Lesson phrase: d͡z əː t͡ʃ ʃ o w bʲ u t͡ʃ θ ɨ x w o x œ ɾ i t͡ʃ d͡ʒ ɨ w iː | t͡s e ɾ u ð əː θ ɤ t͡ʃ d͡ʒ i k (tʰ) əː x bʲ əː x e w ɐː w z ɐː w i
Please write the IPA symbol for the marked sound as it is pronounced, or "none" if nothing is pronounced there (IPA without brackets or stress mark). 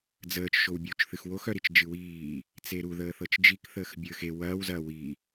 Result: θ